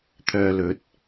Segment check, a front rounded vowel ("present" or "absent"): present